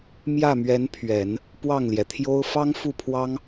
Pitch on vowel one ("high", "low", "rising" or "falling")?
falling